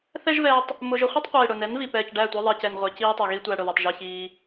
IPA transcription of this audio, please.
θ ɛ˦ ʒ v ɛː˧ tˤ | m ʊ˧ ʒ ʊ˧ χʷ ʌ˦ tˤ qʷ iː˨ ɽ ʊ˨ n ɛ˨˦ n v i˨ p ɛː˨ c ɖ æ˦˨ tʷ ɛ˧ ðˤ ɛ˨ c ɛ˨ n ʁʷ ɛ˨ c iː˦ tˤ ʌ˨ ɣ i˦ tʷ æ˧ ɽ ʊ˨ ð ʌ˨ tˤ ʒ ʌ˧ ç iː˧

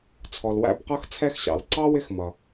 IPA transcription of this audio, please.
t͡sʰ ɔ˨ l w æ̰˦ b q ʌ˥ x t͡sʰ ɛ˦ x ɕ ɑ̰˩ l ǀ ɑ˥ w ɪ˦ x m ʌ˩

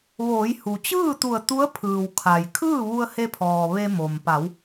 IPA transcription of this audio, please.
ʋ oː˩˧ j h u˩ t͡ɕ ɯː˥˨ t̪ u˧˩ ə̯ t̪ u˧˥ ə̯ pʰ ɯː˩ w kʰ a˩ j kʰ ɯː˥˨ ʋ u˧ ə̯ h e˧ pʰ ɔː˩ ʋ e˧ m o˩ m p a˩˧ w

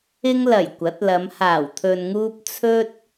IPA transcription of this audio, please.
ɪ˧ ŋ l ɐ˨˩ j kʷ ɐ˨˥ t̚ l ɐ˨˧ m h aː˨˩ w t̪ʰ ɵ˨ n ŋ uː˧ p̚ t͡sʰ ɵ˥ t̚

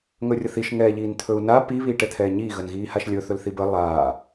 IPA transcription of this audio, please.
ŋ ɵ rʲ ə θ i ʃ ŋ ɛː ʎ iː n t̪ʰ ɵ u̯ n a p i β iː ʈ ɛ t̪ʰ ɛː ɲ iː ɣ ə n ɣ iː h a ʃ lʲ ɵ θ ɵ l θ i b ə lˠ aː

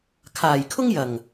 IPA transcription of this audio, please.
kʰ aː˨˩ j kʰ ʊ˥ ŋ j ɐ˨˩ ŋ

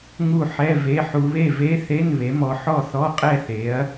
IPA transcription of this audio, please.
ŋ u˥˨ ħ ɛ˧˥˧ v e˧˥˧ ħ u˧ β e˥˨ v e˧˥˧ θ e˧˥˧ n β e˨˥ m ɔ˧ ħ ɔ˥˨ θ ɔ˧˥˧ qʼ ɛ˥˨ θ e˨˥ ɐ̯

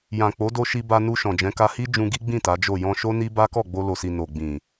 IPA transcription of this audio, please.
j ã˨ k͡p o˨˦ d o˧ ʃ i˧ b a˧ n u˧ ʃ ɔ̃˨ d͡ʒ ɛ̃˨˦ k a˧ h i˦ d͡ʒ ũ˧ ɡ i˦ ɡ͡b ĩ˦˨ t a˨˦ d͡ʒ o˦˨ j ɔ̃˧ ʃ o˦ n i˦ b a˦ k ɔ˦˨ ɡ͡b o˧ l o˨ s i˨ n o˨ ɡ͡b ĩ˨

